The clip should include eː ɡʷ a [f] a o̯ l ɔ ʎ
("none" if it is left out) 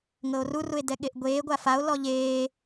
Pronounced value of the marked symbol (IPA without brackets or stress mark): f